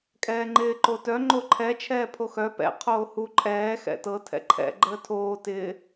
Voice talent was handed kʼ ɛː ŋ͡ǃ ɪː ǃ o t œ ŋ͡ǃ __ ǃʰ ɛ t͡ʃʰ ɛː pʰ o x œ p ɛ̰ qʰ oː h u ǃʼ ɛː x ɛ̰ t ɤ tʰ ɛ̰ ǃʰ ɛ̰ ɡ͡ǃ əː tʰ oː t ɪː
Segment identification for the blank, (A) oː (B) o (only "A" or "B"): B